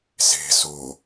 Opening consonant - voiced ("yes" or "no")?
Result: no